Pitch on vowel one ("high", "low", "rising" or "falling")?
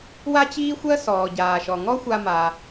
high